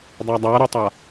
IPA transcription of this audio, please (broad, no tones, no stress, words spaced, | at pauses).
dˤadˤaɾutˤa